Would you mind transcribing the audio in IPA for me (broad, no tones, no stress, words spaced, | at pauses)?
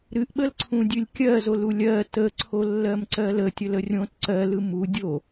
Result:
ɾɨʔɓəlǀʰũdʲɨlʲ kʲɜzolu lʲɜ təǀʰolːɜmǀɜ lətʲələ rʲõt ǀɜlɯ mu dʲo